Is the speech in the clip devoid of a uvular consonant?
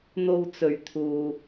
yes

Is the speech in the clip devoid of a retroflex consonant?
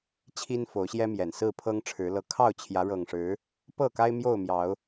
no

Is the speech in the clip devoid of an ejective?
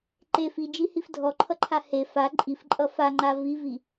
no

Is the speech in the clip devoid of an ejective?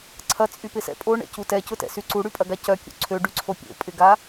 no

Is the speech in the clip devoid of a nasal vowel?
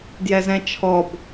no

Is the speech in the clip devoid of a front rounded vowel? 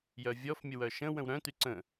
no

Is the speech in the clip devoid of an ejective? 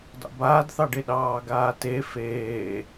yes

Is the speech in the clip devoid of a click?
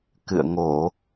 yes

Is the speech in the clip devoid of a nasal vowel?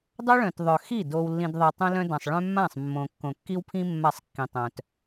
no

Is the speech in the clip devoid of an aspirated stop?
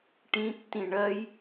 yes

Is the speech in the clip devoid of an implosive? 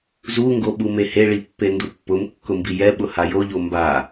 no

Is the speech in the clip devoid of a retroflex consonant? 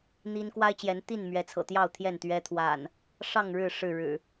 no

